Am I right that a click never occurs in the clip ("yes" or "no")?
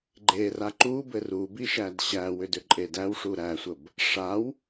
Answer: no